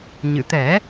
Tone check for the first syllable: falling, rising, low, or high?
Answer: low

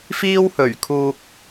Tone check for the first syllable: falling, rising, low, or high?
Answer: high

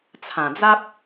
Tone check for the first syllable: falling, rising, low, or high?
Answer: low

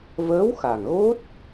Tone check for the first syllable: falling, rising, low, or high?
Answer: rising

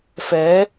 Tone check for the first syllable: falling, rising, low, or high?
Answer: rising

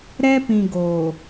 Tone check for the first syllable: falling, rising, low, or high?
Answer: high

